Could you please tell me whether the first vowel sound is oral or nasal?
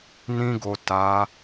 nasal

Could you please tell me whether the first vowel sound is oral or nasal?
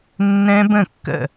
nasal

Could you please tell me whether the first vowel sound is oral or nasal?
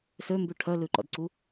oral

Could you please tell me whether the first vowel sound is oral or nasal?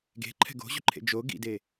oral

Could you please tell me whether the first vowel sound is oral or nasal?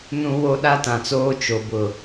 nasal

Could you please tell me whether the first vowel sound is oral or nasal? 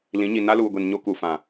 nasal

